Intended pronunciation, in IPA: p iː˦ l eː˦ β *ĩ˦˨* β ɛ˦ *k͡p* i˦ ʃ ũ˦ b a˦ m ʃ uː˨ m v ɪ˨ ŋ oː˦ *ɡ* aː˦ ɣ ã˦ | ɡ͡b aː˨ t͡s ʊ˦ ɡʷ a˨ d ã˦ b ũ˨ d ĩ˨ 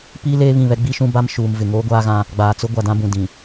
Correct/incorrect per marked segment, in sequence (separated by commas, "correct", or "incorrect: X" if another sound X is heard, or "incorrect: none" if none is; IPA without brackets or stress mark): correct, incorrect: ɡ͡b, incorrect: ɡʷ